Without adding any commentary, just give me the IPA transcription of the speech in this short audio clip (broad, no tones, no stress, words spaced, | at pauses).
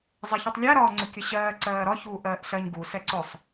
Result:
zˤɛçutˤlʲæɾɒː ŋ͡ǀʊkʲəɕɜː ǀɜːɾɒçuː ʔɜːʔɬɜɲ ɡu sɛǀʊsˤ